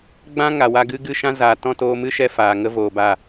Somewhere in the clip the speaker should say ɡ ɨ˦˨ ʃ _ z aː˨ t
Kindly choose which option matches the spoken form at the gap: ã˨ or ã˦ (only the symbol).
ã˦